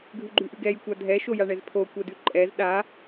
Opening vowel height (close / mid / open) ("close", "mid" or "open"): close